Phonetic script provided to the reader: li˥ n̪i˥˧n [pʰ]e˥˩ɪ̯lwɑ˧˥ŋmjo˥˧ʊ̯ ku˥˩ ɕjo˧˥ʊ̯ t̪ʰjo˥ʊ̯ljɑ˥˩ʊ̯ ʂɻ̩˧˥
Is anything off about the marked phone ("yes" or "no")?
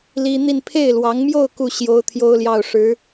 no